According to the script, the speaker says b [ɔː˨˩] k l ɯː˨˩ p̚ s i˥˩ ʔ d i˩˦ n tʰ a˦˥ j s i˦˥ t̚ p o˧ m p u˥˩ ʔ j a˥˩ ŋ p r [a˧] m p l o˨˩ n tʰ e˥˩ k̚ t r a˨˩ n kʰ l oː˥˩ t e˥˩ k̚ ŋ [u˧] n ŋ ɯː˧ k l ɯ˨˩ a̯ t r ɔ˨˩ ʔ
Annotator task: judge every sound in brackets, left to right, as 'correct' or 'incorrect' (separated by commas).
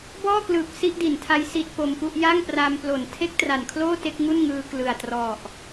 incorrect, correct, incorrect